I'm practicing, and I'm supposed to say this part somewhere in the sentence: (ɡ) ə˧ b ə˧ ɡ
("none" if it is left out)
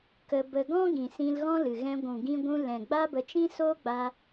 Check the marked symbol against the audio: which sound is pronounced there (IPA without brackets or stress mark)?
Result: k